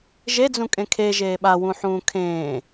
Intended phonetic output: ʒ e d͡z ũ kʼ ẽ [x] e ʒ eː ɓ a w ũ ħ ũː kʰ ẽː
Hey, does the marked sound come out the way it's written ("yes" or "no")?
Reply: no